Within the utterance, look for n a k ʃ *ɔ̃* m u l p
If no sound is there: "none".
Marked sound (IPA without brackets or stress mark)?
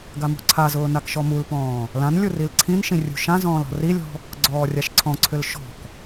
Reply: ɔ